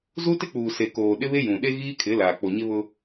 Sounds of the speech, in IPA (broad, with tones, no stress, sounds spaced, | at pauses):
z u˦ t ɪ˦ k͡p uː˨ s e˨ k oː˨ ɗ ɪ˦ β e˦ j ũ˨ ɗ e˦ ɣ iː˦ kʰ ɪ˨˦ l aː˨ k͡p o˨ ɲ ɪ˦ β ʊ˦